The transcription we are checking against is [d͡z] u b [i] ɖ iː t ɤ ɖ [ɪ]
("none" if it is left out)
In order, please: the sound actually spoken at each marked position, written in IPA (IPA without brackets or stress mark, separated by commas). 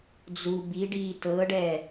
d͡z, i, ɛ